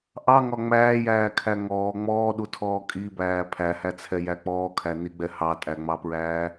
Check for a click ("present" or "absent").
absent